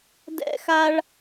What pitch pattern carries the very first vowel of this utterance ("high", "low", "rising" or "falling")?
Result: high